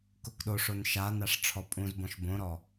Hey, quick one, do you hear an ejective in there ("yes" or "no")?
yes